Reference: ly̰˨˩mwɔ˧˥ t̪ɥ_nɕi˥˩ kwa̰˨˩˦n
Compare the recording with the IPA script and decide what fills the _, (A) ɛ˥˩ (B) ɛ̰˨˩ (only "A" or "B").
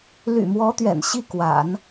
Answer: B